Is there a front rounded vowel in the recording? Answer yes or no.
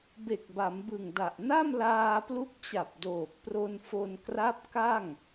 no